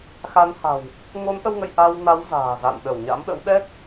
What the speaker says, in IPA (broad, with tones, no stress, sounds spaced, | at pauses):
x a˨˦ n h a̤˨˩ w | ŋ o˨˦ n ʔ ə˧ w ŋ ə̰˧˨ j ʔ a˧ w n a˨˦ w z a̤ː˨˩ z a̰˧˨ n ɗ ə˧˩ w ɲ a̰˧˥ m ɗ ə̰˧˥ w ɗ ɛ˦˥ k̚